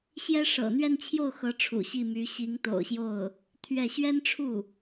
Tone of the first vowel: high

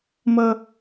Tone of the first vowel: high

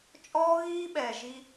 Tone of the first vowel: high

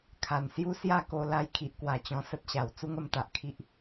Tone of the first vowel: low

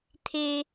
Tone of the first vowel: high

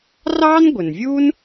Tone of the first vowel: high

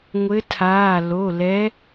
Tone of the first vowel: rising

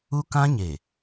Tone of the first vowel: high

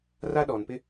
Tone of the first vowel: high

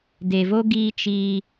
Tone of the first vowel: low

